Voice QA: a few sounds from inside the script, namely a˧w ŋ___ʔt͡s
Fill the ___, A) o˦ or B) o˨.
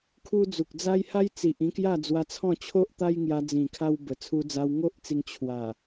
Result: A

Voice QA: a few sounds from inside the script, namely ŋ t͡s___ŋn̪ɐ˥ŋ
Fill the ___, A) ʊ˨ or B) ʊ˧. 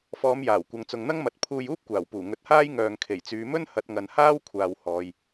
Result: A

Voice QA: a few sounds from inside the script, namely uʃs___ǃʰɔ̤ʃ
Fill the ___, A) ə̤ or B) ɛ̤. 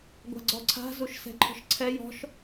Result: B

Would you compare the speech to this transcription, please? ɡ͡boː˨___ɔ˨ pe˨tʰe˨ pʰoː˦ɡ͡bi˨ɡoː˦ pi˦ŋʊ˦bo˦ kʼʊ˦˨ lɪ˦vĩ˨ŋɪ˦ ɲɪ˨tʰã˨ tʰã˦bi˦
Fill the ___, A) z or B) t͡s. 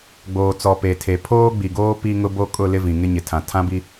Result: B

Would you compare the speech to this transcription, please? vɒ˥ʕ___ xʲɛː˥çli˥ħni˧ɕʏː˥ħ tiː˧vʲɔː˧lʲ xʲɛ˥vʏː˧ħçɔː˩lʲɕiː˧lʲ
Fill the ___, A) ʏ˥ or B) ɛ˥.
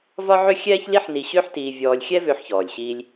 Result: A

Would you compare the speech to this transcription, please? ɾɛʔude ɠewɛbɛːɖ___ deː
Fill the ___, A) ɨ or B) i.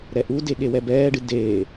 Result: A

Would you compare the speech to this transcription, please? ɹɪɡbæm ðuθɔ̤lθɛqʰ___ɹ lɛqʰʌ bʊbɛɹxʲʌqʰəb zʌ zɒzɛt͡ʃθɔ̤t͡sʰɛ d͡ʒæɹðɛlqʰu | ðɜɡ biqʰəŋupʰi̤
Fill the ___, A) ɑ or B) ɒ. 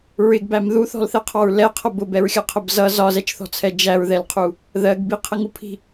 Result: A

